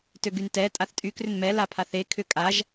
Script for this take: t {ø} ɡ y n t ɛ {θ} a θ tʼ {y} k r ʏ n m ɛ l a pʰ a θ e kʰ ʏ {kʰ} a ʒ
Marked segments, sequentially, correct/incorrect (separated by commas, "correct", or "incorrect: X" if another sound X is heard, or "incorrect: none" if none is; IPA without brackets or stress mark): correct, incorrect: tʼ, correct, incorrect: kʼ